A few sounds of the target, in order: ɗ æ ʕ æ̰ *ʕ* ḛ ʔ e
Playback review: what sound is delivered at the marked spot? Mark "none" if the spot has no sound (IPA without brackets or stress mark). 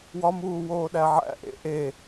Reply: ʔ